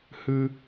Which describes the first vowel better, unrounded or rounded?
unrounded